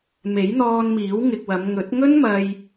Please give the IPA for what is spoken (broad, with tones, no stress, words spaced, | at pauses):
me˨˥jn̪ɔː˧nmiː˨˥w ŋɪ˧k̚wɐ˨˧m ŋɵ˨˥t̚ ŋɵ˥nmɐ˧j